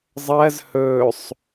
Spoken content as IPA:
zˤ ɜ z h ɵ sˤ

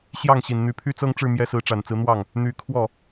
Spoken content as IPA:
ɕ j ɑ˥˩ ŋ ɕ i˨˩ n n̪ y˧˥ pʰ y˥ t͡s ɤ˥ ŋ ʈ͡ʂ ɻ̩˥˩ m j ɛ˥ s ɹ̩˧˥ ʈ͡ʂ a˨˩ n t͡s ɹ̩˧˥ n̪ w ɑ˥˩ ŋ | n̪ y˧˥ kʰ w ɔ˥˩

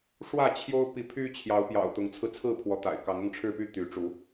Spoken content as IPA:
ʂ w ä˥˨ t͡ɕʰ j o˦ ʊ̯ p i˨˦ pʰ y˦ t͡ɕʰ j ɑ˨˦ ʊ̯ p j ɑ̰˨˩ ʊ̯ t̪ ʊ˨˦ ŋ t͡sʰ ɹ̩˧ t͡sʰ ɹ̩˥˨ pʰ w ɔ˨˦ t̪ a̰˨˩ ɪ̯ k ɑ˨˦ ŋ ʊ˥˨ ŋ ʈ͡ʂʰ ɻ̩˥˨ p y˦ t̪ y˨˦ ʈ͡ʂ u˨˦

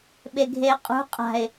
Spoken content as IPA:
ɓ e ɡʱ eː qʼ ṳ qʼ a̤ ɪ̯

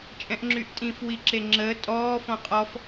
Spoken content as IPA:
t͡ʃʼ ɛ̃ ʔ ŋ͡ǁ y ʔ tʼ ĩ f w i ǁ e ŋ͡ǁ əː tʼ ɔː f ɔ̃ qʼ ɔ f

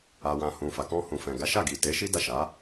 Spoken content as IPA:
a˨ w ã˨ h ũ˨ f a˨ k ɔ̃˧ h ũ˨ f ɛ̃˨ ɡ a˨˦ ʃ a˦˨ ɡ i˨ t e˨˦ ʃ i˦ d a˦˨ ʃ a˨˦

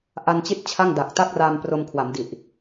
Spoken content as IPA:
ʔ a˧ n t͡ɕ i˦˥ t̚ t͡ɕʰ a˥˩ ŋ d a˨˩ k̚ t a˥˩ k̚ r a˧ m p r o˧ m kʰ w a˩˦ m d i˨˩ ʔ

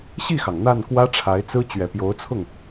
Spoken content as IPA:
ɕ i˥˩ x ɑ˩ ŋ n̪ a˥˩ n k w ä˥ ʈ͡ʂʰ a˧˥ ɪ̯ t͡s ɹ̩˥ t͡ɕ ɥ ɛ˨˩ p j o˧˥ ʊ̯ t͡sʰ ʊ˥˩ ŋ

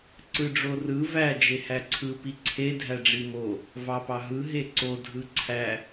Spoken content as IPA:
ǀ ɯ ɖ͡ʐ o r ɯ v æ d͡ʒ e h æ ǀʰ ɯ p i ǀʰ e dʱ æ ɖ͡ʐ i m o | v ɑ p ɑ ɦ ɯ ɦ e ǀ o dʱ ɯ ǀʰ æ

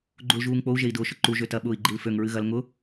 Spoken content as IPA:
ɡ͡ǃ u l ʒ uː ŋ k͡p o u̯ ʒ e i̯ d ʊː ʃ ʊ ǃ u ʒ ø t ɐ ɓ ʊː i̯ ɡ͡ǃ i l f ø ŋ ɹ ɨ ɣ ɐ l ŋ ʊ

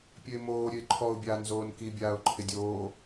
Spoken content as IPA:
pʲ ø ɪ̯ m oː ɾʲ ø ɪ̯ ǃʰ ɔ ʊ̯ bʲ aː n z oː n k i bʲ aː ʊ̯ ǃʰ ɪ dʲ oː

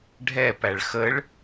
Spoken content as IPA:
ɖʱ ɛ p æ ɭ x ə ɭ

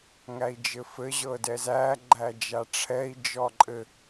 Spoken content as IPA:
ŋ æ i̯ d͡ʒ ɘ f ɘ ʑ ɤ d ɛ z æ ɡ͡ǃ æ d͡ʒ a ʈ͡ʂʰ ɛ i̯ d͡ʒ ɔ ǃʼ ɘ

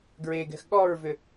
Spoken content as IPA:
ɡ ɹ e ɡ ɛ̤ x ɠ ɔ ɹ v ʏ

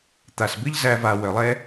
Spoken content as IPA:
t̪ a˨ s b ɨ˦ ʎ z æ˧ v a˨ w œ˨ lˠ ɛ˦

